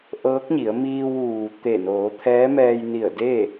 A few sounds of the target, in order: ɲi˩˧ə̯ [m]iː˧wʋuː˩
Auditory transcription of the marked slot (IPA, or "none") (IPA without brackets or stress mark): m